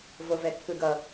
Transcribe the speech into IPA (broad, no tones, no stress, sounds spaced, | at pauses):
v o v ɛ kː ɯ ɡ ʌ